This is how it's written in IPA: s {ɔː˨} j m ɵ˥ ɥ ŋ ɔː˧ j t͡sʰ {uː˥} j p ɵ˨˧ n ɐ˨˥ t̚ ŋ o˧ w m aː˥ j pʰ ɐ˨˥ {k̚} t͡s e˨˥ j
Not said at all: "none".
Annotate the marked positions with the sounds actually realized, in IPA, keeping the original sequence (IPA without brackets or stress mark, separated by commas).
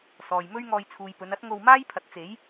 ɔː˨, uː˨, t̚